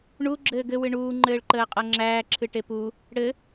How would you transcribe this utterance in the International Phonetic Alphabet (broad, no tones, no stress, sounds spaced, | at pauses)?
ɳ u ɡ͡ǁ ɘː ɡ ɘ w ɨ ɳ uː ŋ͡ǃ ɘː ɭ ǃ əː qʼ ɤ ŋ͡ǁ æː ǁʰ ɨ ʈ e p u | ɽ ɘ